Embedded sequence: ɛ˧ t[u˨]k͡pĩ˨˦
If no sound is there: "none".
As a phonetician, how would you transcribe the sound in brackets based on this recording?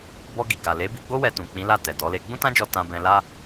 ũ˨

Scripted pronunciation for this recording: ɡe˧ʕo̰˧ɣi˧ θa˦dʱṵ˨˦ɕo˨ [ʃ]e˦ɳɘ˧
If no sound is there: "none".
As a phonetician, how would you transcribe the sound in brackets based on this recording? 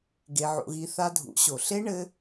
ɬ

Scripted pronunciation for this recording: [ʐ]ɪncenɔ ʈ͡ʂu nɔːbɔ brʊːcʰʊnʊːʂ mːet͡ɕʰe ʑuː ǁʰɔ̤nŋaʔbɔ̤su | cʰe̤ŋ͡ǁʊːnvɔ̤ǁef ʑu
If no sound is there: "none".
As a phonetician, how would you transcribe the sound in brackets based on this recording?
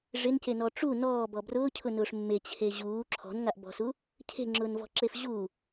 ʐ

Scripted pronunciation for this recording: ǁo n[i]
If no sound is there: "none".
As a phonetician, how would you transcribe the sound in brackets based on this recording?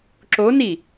i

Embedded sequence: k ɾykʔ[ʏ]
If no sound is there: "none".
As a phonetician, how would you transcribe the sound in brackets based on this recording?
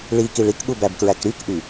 y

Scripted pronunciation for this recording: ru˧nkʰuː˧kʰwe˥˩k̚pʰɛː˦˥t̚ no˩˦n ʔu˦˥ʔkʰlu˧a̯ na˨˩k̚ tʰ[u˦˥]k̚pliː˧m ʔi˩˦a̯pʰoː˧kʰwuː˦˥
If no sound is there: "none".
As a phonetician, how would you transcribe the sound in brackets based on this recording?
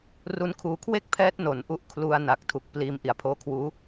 u˨˩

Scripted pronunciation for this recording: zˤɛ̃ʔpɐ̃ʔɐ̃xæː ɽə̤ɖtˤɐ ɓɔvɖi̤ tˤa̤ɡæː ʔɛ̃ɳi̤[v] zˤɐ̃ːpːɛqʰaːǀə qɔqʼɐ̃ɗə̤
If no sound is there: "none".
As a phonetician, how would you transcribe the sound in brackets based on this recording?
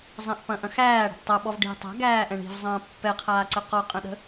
v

